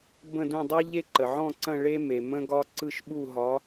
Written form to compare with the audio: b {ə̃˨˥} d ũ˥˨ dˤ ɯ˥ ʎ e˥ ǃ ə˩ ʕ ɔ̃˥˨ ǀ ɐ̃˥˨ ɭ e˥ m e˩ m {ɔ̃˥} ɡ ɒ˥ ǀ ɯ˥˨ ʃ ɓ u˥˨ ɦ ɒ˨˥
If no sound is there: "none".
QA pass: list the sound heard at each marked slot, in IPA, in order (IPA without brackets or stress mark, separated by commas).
ə̃˥˨, ə̃˥